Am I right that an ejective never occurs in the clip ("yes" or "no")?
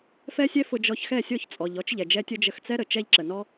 no